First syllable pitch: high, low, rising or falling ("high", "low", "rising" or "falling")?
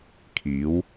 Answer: rising